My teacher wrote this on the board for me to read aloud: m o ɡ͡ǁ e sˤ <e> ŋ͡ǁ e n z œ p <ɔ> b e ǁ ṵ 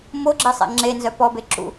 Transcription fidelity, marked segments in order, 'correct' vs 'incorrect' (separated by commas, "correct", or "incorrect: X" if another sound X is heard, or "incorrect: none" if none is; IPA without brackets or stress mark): incorrect: ḛ, correct